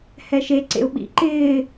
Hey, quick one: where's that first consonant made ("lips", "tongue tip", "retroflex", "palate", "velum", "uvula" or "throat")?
throat